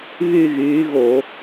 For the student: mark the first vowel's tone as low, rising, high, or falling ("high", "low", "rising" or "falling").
falling